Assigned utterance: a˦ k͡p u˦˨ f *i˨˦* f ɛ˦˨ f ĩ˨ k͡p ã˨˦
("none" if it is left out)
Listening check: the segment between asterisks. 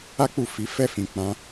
i˨˦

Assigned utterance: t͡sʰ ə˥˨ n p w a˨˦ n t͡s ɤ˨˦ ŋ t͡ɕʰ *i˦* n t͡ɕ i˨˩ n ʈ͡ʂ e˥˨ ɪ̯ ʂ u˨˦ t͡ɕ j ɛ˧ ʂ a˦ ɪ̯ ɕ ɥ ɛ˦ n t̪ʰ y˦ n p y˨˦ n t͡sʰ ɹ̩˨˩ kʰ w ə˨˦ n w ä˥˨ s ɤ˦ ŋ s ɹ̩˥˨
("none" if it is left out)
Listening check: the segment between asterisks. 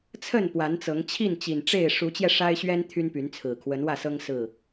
i˥˨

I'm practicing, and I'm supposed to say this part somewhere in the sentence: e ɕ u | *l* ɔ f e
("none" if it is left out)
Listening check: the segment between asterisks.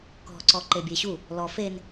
l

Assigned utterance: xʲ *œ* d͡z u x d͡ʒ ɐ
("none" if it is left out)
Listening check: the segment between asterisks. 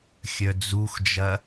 œ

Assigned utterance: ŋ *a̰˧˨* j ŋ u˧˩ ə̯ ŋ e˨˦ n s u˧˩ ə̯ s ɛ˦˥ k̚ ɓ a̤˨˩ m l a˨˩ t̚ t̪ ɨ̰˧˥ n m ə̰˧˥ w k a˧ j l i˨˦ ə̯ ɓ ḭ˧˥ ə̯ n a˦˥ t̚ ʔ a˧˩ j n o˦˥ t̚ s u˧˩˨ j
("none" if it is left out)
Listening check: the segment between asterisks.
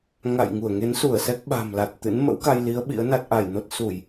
a̰˧˨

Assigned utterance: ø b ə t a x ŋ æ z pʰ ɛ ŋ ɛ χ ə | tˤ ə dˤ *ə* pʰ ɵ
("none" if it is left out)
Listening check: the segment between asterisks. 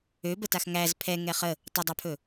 a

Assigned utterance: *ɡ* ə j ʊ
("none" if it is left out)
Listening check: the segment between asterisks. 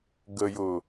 ɡ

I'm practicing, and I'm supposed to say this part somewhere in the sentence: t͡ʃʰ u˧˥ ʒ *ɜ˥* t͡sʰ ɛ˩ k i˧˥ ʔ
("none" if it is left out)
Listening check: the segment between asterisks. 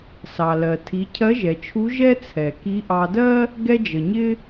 ɛ˥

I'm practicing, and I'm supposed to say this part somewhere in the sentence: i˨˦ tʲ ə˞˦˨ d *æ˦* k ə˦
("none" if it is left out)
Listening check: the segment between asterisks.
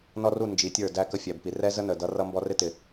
æ˦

